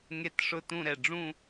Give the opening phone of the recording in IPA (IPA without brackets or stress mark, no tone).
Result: ŋ